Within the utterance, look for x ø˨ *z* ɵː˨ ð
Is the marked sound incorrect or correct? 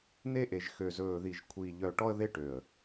correct